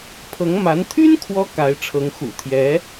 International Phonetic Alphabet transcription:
pʰ ɤ˧˥ ŋ m a˧˥ n t̪ʰ y˥ n kʰ w ɔ˧˥ k a˧˥ ɪ̯ ʈ͡ʂʰ ɤ˧˥ ŋ x ṵ˨˩ t̪ʰ j ɛ˧˥

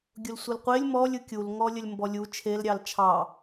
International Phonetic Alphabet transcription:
ɡʲ ʊ l sʷ ɯ l qʷ e lʲ m ɔ lʲ ɯ kʲ u l ŋ ɔ lʲ ə lʲ m b ɔ lʲ u t͡ʃʰ e l ɾʲ ɑ l t͡ʃʰ ɑ

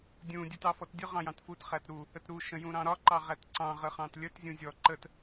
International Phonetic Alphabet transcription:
dʲ ũ dʲ u t ɑ f ɔ t dʲ ʊ ʁ ɑ̃ j ɑ̃ t f u t χ æ t ɾ u | ə t ɾ u ʃ ə̃ j ũ ɾ ɑ̃ ɾ ɒ ǃ ɑ ʁ æ t ǀ ɑ̃ ʁ ə χ ɑ̃ t lʲ ə t zʲ ũ zʲ ɔ ǃ ə t

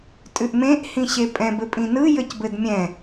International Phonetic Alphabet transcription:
tʼ ʉ ʔ m ẽ ʔ h ĩ ɕ e pʼ ɛ̃ b ɘ pʼ ĩ n ɯ j ɘ c b ɘ d mʲ ɛ̃

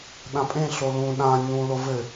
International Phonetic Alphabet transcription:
ɗ ã pʼ ẽ ɬ o l ũ ɗ ã ɲ ũ l o v ɘ

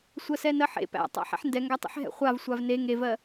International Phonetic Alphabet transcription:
sʷ ɜ s ɛ n ɜ ħ ḛ p æ̰ tˤ a̰ ħ ɛ̰ ħ n d ɛ ŋ ɡ æ tˤ ḛ ħ ɦ ɛ̰ χʷ a v sʷ a v n e ŋ e v ɜ

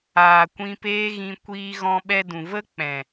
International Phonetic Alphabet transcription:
aː˨ kʷ ĩ˧ p eː˦ ɣ ĩ˧ kʷ iː˧ ɣ ɔ̃˧ ɓ ɛ˧ d ũ˨ v ə˦ k͡p ɛ̃˨

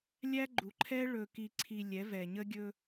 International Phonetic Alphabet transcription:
lʲ æ˦ ɡ͡ǃ u˨ ǃʰ ɛ˦ ɭ ɵ˨ k i˨ ǀʰ i˨ lʲ ɛ˨˦ v ɛ˨ ɲ ə˦ ɡʲ ɵ˦

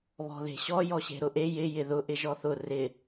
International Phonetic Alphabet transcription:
β ɔ̤ ð e̤ ɕ ɔ j ɔ ɕ e̤ ɾ ʊ ʔ e j ɪ j ɪ ð ʊ ʔ ɪ ʒ ɔ θ ʊ r ɪ

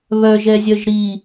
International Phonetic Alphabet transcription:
β œ ʒ ɛ zʲ œ ʒ ɾ i

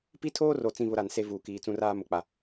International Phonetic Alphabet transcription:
p i˦ tʰ oː˦ r o˨ t͡s ĩ˨ β ʊ˦ ɾ a˨ n s e˦ v uː˨ k iː˨ t͡s ũ˦ r aː˦ m ʊ˨ k͡p a˨

